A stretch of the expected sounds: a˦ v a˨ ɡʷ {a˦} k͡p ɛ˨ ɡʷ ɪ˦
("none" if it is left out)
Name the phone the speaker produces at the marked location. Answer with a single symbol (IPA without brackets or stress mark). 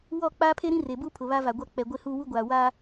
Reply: a˦